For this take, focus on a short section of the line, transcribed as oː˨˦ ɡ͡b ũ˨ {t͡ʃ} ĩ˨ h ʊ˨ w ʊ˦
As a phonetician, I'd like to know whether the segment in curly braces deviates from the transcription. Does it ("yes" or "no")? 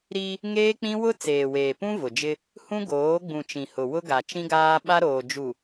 no